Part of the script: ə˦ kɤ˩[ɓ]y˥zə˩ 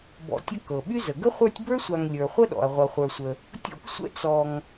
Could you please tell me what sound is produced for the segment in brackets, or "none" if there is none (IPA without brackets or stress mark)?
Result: ɓ